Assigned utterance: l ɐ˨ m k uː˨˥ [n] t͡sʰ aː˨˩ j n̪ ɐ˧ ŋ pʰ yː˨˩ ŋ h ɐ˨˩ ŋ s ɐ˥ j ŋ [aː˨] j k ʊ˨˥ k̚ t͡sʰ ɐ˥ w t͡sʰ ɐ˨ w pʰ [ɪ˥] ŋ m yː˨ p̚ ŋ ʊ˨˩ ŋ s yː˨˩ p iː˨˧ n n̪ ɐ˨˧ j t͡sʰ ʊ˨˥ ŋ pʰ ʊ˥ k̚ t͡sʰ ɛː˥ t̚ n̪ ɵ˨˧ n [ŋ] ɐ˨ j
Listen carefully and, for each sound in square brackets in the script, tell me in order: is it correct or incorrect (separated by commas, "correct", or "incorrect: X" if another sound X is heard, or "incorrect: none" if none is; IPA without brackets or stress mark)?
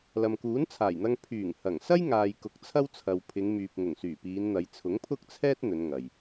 correct, correct, incorrect: ɪ˨˧, correct